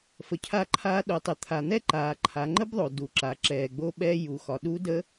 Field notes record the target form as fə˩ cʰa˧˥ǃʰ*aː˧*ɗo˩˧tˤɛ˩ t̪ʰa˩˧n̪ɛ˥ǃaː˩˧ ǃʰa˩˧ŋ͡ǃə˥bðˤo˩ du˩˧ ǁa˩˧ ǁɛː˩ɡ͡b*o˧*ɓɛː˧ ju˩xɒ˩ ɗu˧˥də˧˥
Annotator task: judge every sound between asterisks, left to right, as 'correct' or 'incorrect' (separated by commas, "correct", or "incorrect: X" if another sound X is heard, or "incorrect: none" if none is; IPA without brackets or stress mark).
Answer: correct, correct